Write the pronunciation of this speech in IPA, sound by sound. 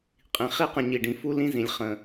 qʼ ĩ˩ χ i˦ q ə̃˨ ɲ i˩ ɖ ĩ˩ f u˥ l ĩ˦ z ĩ˩ lʲ χ ə̃˩

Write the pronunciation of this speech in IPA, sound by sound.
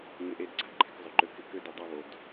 ŋ ɪ˧˩ ʔ e˧ d ǀ a̤˥˧ ǃ e̤˧ k zˤ ʊ˩˧ ǃ ø˧ k ɪ˧ k ø˥˧ d i˧˩ dˤ e˥˧ β o˧ d

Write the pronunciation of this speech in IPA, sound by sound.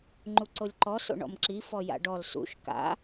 ŋ͡ǃ u ǀ o lʲ ǃ ɔ s o̰ ɳ ɔ̰ m ǁ i f ɔ j a̰ ɖ ɔ l s ṵ ʃ k a̰

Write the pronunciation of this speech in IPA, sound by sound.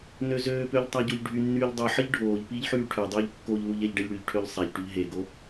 n ø z øː p ø ʎ tˤ a ɟ o ʎ ɖʱ y nː yː ʎ dˤ y ħ ə ʎ ɖʱ oː ʎ p iː ʎ ħ yː ʈʰ ø dˤ øː ʎ kː o ʎ l u ʎ ɛ ʎ ɖ ɛ ʎ ɽ y ʎ ʈʰ ø ʎ sˤ ɛ ʎ ʈ y ʎ ɦ e ɡ o

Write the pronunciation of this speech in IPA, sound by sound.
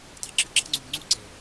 tˤ ɑ̤˧ ǁ ɯ˧ ǁ ɑ̤˦ ŋ͡ǀ u˨ m ŋ͡ǀ u˦˨ ǀ e˨

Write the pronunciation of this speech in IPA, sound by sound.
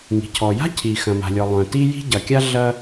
ŋ i̤˩ cʰ ɔ˩ j a̤˥ cʰ i˩ x ɐ̃˩ m a̤˩ lʲ ɔ˩ lˠ œ̃˩ t i˥ j i̤˥ ɟ ɐ˩ kʲ a˥ ɮ ɐ˥

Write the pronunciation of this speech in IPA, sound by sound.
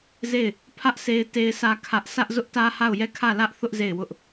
z e˦˨ ɪ̯ | pʰ ä˦ ʔ s e˦ ɪ̯ t e˦ ɪ̯ s ä˦ kʰ ä˦ ʔ s ä˦ ʔ z ʊ˦ ʔ t ä˦ h a˦˨ ʊ̯ j ɛ˦˨ kʰ ä˦˨ l ä˦ ʔ θ ʊ˦ ʔ z e˦˨ ɪ̯ w ʊ˦ ʔ

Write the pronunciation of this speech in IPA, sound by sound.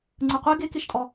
ŋ͡ǀ ɯ qʷ e ɡ e k e ʃ tʼ ɔ

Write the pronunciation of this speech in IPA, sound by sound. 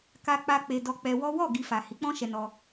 k a˧ k͡p a˧ k͡p e˧ d ɔ˧ k͡p ɛ˧ w ɔ˦ w ɔ˦˨ ɡ i˨ f a˨ h i˨˦ k͡p ɔ̃˦ ʃ ɛ˧ n ɔ˧

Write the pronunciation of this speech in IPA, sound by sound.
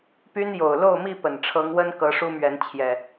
p y˦ n j o˨˩ ʊ̯ l o˥˨ ʊ̯ m i˥˨ p ə˨˩ n ʈ͡ʂʰ ɤ˨˦ ŋ w ə˦ n k ɤ˨˦ ʂ u˦ m ɥ ɛ˨˦ n t͡ɕʰ j ɛ˨˩

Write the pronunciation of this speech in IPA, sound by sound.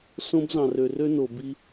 s õ˦ b z ɑ̃˨ r ø˨ r ø˦ n o˨ b i˦

